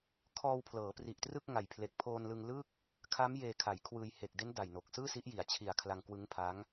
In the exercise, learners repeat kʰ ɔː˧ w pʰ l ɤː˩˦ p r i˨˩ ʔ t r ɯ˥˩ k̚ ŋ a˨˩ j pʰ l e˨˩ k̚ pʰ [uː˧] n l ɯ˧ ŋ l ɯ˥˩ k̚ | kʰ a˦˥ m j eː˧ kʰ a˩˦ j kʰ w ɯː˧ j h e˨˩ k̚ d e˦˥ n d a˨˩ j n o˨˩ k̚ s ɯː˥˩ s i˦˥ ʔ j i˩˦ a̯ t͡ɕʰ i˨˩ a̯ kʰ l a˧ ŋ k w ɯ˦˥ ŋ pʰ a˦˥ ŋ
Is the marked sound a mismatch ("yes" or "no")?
yes